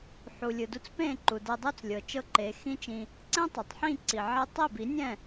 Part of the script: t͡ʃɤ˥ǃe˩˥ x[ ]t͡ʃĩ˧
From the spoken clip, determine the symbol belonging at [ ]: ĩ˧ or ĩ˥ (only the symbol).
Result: ĩ˥